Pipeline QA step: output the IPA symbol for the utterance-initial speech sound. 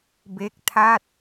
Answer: b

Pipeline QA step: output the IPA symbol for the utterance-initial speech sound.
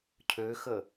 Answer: cʰ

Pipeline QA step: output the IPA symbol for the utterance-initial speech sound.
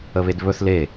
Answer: ə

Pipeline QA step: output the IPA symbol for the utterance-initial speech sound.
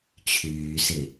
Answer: t͡ɕʰ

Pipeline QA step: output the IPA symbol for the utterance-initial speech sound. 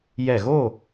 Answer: j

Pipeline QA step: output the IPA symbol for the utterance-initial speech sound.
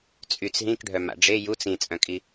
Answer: t͡sʼ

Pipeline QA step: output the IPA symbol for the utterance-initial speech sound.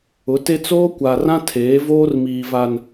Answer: ʊ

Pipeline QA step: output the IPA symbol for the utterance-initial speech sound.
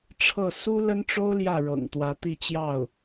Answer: ʈ͡ʂʰ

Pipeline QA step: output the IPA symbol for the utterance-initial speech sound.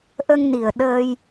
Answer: ʔ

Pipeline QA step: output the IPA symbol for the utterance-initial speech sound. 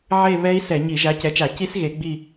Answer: ʕ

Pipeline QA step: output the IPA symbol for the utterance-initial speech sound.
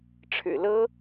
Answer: ʈ͡ʂʰ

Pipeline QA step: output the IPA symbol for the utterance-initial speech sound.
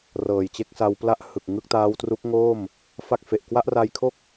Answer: r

